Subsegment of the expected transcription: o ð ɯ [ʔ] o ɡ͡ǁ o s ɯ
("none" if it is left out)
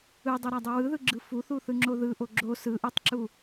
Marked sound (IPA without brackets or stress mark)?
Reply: ʔ